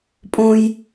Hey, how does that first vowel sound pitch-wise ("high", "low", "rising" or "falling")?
high